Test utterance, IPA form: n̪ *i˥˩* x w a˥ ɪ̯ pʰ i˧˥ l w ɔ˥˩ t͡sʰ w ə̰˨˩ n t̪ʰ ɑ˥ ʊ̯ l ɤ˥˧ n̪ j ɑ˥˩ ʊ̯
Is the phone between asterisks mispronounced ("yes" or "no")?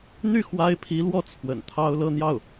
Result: yes